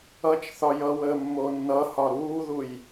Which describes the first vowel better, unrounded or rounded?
unrounded